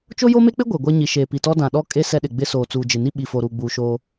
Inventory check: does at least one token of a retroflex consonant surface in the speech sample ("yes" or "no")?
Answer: no